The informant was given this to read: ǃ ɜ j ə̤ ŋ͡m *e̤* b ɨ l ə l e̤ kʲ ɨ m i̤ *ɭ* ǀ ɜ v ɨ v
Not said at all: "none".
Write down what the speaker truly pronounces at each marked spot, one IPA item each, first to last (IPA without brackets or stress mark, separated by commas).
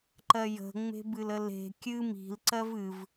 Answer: e̤, l